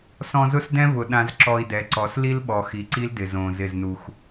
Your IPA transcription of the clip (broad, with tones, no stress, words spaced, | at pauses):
sɔ̃˧zʊ˦sdɛ̃˦vʊ˨ ɗã˧zǁɔ˧i̯dɛ˨˦ǀɔ˨˦s li˦lɓɔ˨ xi˨˦ǀi˦ldɪ˨ zõ˨ zɪ˦˨znu˧x